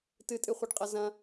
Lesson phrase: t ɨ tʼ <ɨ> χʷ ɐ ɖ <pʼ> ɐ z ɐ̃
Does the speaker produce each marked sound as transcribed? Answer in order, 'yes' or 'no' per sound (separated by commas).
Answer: yes, no